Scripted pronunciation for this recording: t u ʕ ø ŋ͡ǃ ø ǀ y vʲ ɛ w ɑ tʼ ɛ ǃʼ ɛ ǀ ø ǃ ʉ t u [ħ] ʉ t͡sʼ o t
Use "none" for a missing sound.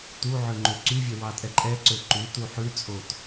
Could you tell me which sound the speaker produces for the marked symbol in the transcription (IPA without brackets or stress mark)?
ħ